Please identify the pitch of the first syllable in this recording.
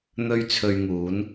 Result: high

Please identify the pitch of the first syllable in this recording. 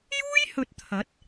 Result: high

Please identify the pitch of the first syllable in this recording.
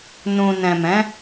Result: low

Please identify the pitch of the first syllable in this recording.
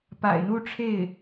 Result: low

